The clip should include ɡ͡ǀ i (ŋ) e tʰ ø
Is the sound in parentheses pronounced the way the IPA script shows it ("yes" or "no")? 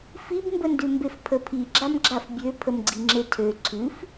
no